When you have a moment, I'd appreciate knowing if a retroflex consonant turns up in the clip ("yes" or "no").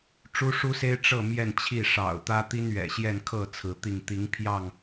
yes